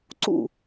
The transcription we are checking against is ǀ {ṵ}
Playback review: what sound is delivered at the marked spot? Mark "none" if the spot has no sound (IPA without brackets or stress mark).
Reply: ṵ